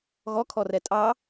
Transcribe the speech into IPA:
ɣɔkʰɔrɛ tʼɑ

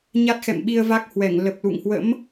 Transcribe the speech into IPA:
ɲa˦˥t̚xɛ̰˧˨mɓi˧ə̯ va˦˥k̚hwɛ˧˩ŋ lə˨˩p̚lṵ˧˨ŋhwə̰˧˥m

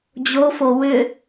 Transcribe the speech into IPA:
d͡ʑofo wʏ

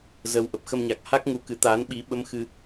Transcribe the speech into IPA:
zə˨˦wʔə˨˩p̚xə˧mɲa˨˩k̚ ha˦˥k̚ ŋu˧kɨ˨˦ t̪aː˨˦n ɓi˨˦ɓə˧m xɨ˧

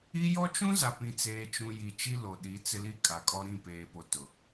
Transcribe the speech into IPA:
i˦ jɔ˦t͡ʃũ˦za˨ pĩ˦t͡seː˦t͡ʃũ˦ ji˨ t͡ʃi˦lo˨ɗi˨˦ t͡sɪ˦li˦kʼa˨kʼɔ˦ ɾĩ˦˨peː˨po˨ tʊ˨

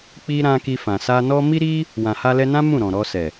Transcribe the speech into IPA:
k͡pi˦ɾã˦ki˧fã˨ sa˧nɔ˦ mi˦ɾi˦ | wã˨ha˧lɛ˧nã˦ mũ˦˨ ɾɔ̃˨ɾɔ˧sɛ˨

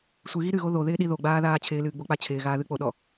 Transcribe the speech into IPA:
sʷɨɣi ɾɨɣo ðoðɪːɗi ðoɡ͡baːðaː t͡ɕʰɪːlɨːɡ͡bok͡pa t͡ɕʰɪːɣaːðɨ k͡poɗɔ

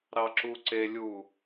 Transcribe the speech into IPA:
ɾɑǁuǀelʲu

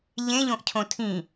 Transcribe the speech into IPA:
ʎẽʎõʔcʰõ tʰĩ

